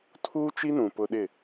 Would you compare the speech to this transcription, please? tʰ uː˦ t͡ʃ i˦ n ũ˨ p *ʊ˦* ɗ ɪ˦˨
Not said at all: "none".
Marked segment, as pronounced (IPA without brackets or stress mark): ʊ˦